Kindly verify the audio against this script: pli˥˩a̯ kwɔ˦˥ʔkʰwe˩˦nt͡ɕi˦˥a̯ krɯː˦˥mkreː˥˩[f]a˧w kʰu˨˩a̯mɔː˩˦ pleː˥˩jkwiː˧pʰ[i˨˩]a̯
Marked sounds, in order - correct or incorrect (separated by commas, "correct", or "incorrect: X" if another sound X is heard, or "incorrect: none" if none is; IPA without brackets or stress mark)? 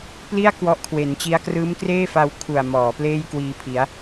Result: correct, incorrect: i˩˦